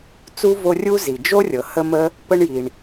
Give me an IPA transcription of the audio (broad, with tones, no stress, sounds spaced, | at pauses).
t͡s u˥ v o˦ rʲ u˥ z i˩ d͡ʒ o˥ rʲ ɤ˩ h ə˥ m ə˥ | p ə˥ ɳ j i˩ ɳ